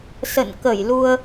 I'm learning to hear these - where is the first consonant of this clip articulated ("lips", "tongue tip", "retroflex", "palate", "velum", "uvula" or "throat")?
tongue tip